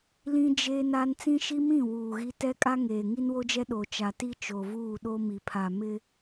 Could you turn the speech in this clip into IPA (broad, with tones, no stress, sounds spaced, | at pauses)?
l ĩ˦ d͡ʒ e˦ n a˦ n t͡s ĩ˦ ʃ i˦ m ĩ˦˨ w uː˨ ɣ i˦ t ɛ˦ kʼ a˦ ŋ eː˨ ŋ i˦ n w o˦ d͡ʒ ɛ˦ ɗ o˨ t͡ʃ a˨ t i˦ t͡ʃ o˨ v uː˦˨ ɗ o˦ m i˨ pʰ a˨ m ɪ˦